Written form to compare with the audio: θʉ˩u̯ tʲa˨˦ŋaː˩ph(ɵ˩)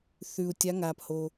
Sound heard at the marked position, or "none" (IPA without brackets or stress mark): o˩